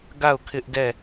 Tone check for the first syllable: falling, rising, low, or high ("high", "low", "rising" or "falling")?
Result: falling